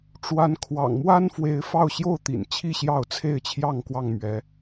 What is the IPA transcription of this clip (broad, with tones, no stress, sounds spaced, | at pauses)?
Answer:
ʈ͡ʂ w a˨˦ n kʰ w ɑ̰˨˩ ŋ m w a˦ n f w e˨˦ ɪ̯ f ɑ˥˨ ʊ̯ ɕ j o˥˨ ʊ̯ t̪ ḭ˨˩ n t͡ɕʰ i˥˨ ɕ j ɑ˥˨ ʊ̯ t͡sʰ e˥˨ ɪ̯ t͡ɕʰ j ɑ˥˨ ŋ k w ɑ˥˨ ŋ m ɥ ɛ˨˦